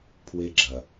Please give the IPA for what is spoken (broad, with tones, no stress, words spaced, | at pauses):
pʰwe˦ɡ͡ǁɐ˨